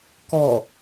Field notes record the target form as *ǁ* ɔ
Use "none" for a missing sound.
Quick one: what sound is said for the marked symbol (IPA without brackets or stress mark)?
k